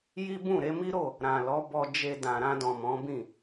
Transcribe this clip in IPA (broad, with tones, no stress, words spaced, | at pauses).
ji˦bũ˦˨ ɾe˧mi˦ɾo˦˨ | ɾã˨lɔ˨˦ bɔ˧d͡ʒe˧ dã˨ ɾã˧dɔ̃˨ mɔ̃˨˦bĩ˦˨